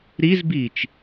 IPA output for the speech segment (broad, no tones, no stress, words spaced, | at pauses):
ɾizbiːt͡ʃ